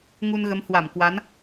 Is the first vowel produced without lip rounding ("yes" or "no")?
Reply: no